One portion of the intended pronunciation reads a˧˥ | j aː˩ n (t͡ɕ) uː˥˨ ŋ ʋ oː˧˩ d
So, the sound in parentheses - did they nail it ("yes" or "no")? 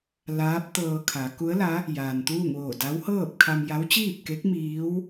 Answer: no